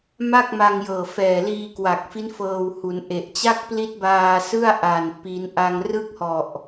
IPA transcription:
m a˥˩ k̚ m a˧ ŋ j ɤː˨˩ f ɛː˨˩ l iː˧ k w a˨˩ k̚ f i˦˥ n f ɤː˧ w h u˩˦ n ʔ e˨˩ ʔ t͡ɕ a˥˩ k̚ p l i˦˥ t̚ b aː˧ s ɯ˥˩ a̯ ʔ a˨˩ n p i˦˥ n ʔ a˧ ŋ r ɯ˥˩ k̚ h ɔ˨˩ ʔ

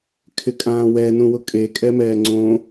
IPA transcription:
kʰ ɪ kʼ ãː w ɛ n ũ w ʊ kʼ e kʼ ɛ m ɛː ŋ͡ǀ õ

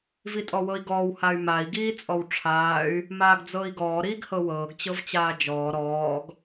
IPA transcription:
v i tʼ ɔ w ɤ i̯ ɡ ɔː w h a y̯ m a i̯ ɡ iː t͡sʼ ɔ w ʈ͡ʂʰ aː y̯ | m aː ɡ d͡z ɤː i̯ ɡ ɔː ɾ iː ɡ h ɤ w ɤː ɡ t͡ɕ ɤ v t͡ɕ aː d͡ʒ ɔː ɾ ɔː ɡ

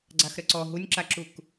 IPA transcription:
ɡ͡ǀ a x ɾ ə ǀ ɔ ɦ u nʲ ǁ a ǁ u k

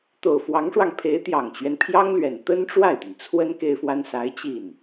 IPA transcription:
t̪ o˨˩ ʊ̯ f w ɑ˧˥ ŋ ʂ w ɑ˧ ŋ pʰ e˧˥ ɪ̯ t̪ j ɑ˨˩ ŋ t͡ɕ ɥ ɛ˦ n pʰ j ɑ˥ ŋ l ɥ ɛ˨˩ n t̪ ə˥ n ʈ͡ʂ w a˥˩ ɪ̯ t̪ i˩ n t͡sʰ w ə˥ n k e˥ ɪ̯ f w a˥ n s a˧˥ ɪ̯ t͡ɕ i˥˩ n

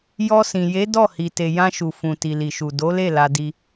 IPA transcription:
j ɔ˧ s ĩ˨ j e˨˦ d ɔ˦˨ h i˨ t e˨ j ã˧ ʃ u˨ f ũ˨ t i˨ l i˨ ʃ u˨ d o˨˦ l e˦˨ l a˧ d i˧

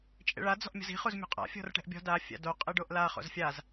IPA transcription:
t͡ʃʼ ḛ ɭ a d͡z ɔ̤ ʔ mʲ ɔ̤ z i̤ χ u z mʲ ṳ qʼ a̰ fʲ ɔ̤ r ʈ ɛ̤ ʔ bʲ ɔ̤ d a fʲ a̰ d o qʼ ɨ ɖ o ʔ l a χ o̰ z fʲ a z

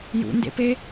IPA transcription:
j ṵ n d ḛ p e

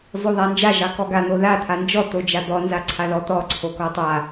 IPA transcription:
zˤ o ðˤ a n d͡ʒ a ʒ ɑ k ɔ ɡ a n̪ o ð a t̪ʰ a n d͡ʒ ɔ t̪ o d͡ʒ a d̪ ɔ n z a ǀʰ a ð ɔ t̪ ɔ ǀʰ o k ɔ tˤ a

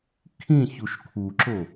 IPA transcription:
kʰ ĩ ç u ʃ kʰ u ǁ o

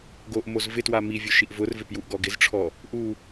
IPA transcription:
ɡ o ʔ m o z v ɪ t w a m i vʲ ʊ ʃ i ʔ v ʊ r v ɪ p j u ʔ ɡ ɔ ɡ ɪ z ʈ͡ʂʰ ɔ | ʔ u

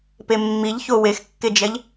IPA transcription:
p e mː i ʎ ç o w e x kː e d͡ʒ ɛ ʎ

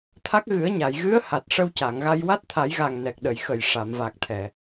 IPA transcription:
t̪ʰ a˦˥ k̚ ɣ ɨ˨˩˦ ə̯ ɲ a˨˩˨ j ɣ ɨ˧˥ ə̯ h a˨˩ t̚ ʂ ə˧ w c a˨˩˨ ŋ ɣ a˧ j w a˦˥ t̚ t̪ʰ a˨˩˦ j ɣ a˨˩ ŋ n ɛ˨˩ k̚ ɗ ə˨˩˨ j x ə˨˩ j ʂ a˨˩˨ m v a˨˩ k̚ t̪ʰ ɛ˨˩˨

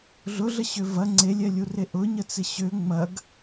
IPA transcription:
ɮ ʊ ɮ ə ɕ ø v ɐ ŋ͡ǀ e lʲ ɛ lʲ u r e ʔ ʊ ɲ ə t͡s ɪ ɕ ø ŋ͡m ɐ ɡ

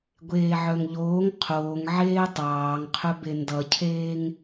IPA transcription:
ɡʷ eː ʕ œ ŋ ʎ oː ŋ qʰ oː ŋ ʕ eː tˤ ɑː ŋ qʰ ɵ b e n d ʌ cʰ eː ŋ

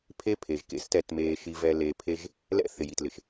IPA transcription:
pʰ e˦ pʰ e˨ ʒ k ḛ˦ s t ɛ˨ t m eː˨ ʃ i˨ v ɛ˨ l eː˨ pʰ e˦ ʒ | l ɛ̰˦ θ ɪ˨ j i˨ t l ɪ˨ ʃ

